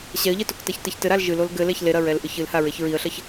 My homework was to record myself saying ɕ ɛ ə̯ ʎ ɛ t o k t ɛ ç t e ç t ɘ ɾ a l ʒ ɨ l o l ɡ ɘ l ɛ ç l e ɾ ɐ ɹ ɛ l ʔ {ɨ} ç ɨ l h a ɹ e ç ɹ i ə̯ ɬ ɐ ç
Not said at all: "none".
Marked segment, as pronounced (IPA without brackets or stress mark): ɨ